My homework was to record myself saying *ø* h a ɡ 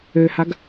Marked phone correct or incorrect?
correct